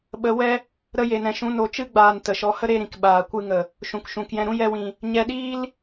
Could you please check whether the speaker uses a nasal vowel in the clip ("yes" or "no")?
yes